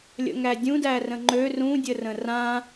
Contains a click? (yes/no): yes